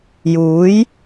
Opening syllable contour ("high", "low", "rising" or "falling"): rising